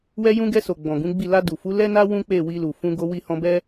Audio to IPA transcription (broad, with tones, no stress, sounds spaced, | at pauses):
w ɛ˧ j ũ˧ ɡ ɛ˧ s o˨ ɡ͡b ɔ̃˨ ɡ ũ˨˦ ɡ͡b i˦˨ l a˧ d u˨ f u˨˦ l ɛ˦ n a˦ w ũ˦ k͡p e˦˨ w i˧ l u˨ f ũ˧ ɡ o˧ w i˧ h ɔ̃˧ b ɛ˦